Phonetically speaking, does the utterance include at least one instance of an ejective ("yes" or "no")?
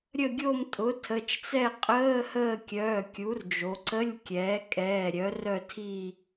yes